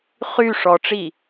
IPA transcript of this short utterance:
χ y ʂ ɔ ʈ͡ʂ i

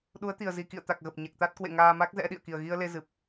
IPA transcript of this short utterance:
ɗ u˨˦ ə̯ t̪ i˨˩ ə̯ z i˨˩ k ḭ˧˨ ə̯ t̪ a˨˩ k̚ ɣ ə˨˩ p̚ ɲ ɛ˨˩ k̚ t̪ a˦˥ t̚ k w ḛ˧˨ ŋ aː˧ m a˦˥ k̚ z ɛ̰˧˥ ɗ ḭ˧˨ ə̯ k i˨˩ ə̯ ɣ i˧ ə̯ l e˧ z ɨ˨˩ p̚

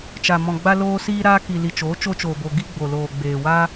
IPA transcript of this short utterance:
t͡ʃ a˨ m ɔ̃˨ ɡ͡b a˧ l oː˧ s iː˧ ɾ aː˧ k i˨ l i˨ t͡ʃ oː˨˦ t͡ʃ o˧ t͡ʃ oː˨ b o˨ ɡ i˧ ɡ͡b o˨ l oː˨ ɡ͡b eː˨ w a˦

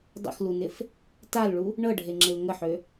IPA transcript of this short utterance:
dˤ ə̰ x l u n ɪ f | t a l ɭ u | ɳ ɤ ɖʱ e ŋ͡ǁ ɪ l ŋ ə ħ ø

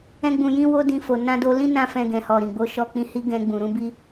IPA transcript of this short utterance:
ɛ̃˦ ɡ͡b ũ˧ j ĩ˦ w o˦ d ĩ˧ f o˨ n ã˧ d o˧ l ĩ˦ n ã˦ f ɛ̃˧ ɡ ɛ̃˨ h ɔ˨ ɾ ĩ˨ ɡ͡b o˧ ʃ ɔ˧ k͡p ĩ˧ h i˦ ɡ ɛ̃˧ ɡ͡b ũ˨ ɾ ũ˧ b i˧

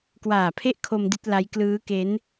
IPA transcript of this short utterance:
k w aː˨˩ pʰ e˥˩ ʔ kʰ o˧ m d i˥˩ t̚ l a˦˥ j k l ɯː˦˥ k e˦˥ n

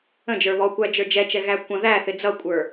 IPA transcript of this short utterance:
ə̃ d͡ʒ ə˞ β ɔ kʷ æ d͡ʒ ə˞ d͡ʒ ɛ t͡ʃ ɛ ɣ æ kʷ ə̃ ð æ θ ɪ d͡z ʌ kʷʼ ə˞

